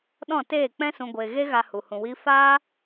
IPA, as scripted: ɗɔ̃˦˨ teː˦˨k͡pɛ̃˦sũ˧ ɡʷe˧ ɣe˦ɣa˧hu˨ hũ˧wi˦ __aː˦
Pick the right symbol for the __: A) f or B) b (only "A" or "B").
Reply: A